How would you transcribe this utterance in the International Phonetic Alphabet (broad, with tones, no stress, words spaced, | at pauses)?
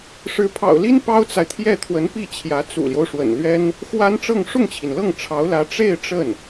ʂɻ̩˧˥pʰɑ̰˨˩ʊ̯li˥n pɑ˥ʊ̯t͡sa˨ɪ̯t̪ʰjɛ˥˩ t̪ʰwə˧˥npi˥˩t͡ɕʰjä˧˥ t͡sṵ˨˩ljo˦ʊ̯ʂwə̰˨˩n lɥɛ˥n | xwa˥nʈ͡ʂɤ˥˧ŋ ʂʊ˥˩ŋt͡ɕʰi˩nlɤ˥˩ŋ ʈ͡ʂʰɑ˧˥ʊ̯lä˧˥ ʈ͡ʂe˥˧ɪ̯ ʈ͡ʂə˥˩n